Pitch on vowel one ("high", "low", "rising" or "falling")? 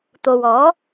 low